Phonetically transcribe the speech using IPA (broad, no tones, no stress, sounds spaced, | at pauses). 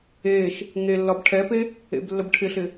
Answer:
eː ʃ | ŋ e lː ɒ b ʈʰ ɛ p e | ḛ b lː ə b ʈʰ ɪ ɬ ɪ